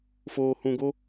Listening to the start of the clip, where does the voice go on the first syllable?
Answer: low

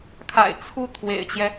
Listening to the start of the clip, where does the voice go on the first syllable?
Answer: low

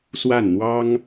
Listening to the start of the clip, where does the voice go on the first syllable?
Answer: falling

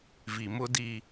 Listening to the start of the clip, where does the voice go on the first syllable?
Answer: low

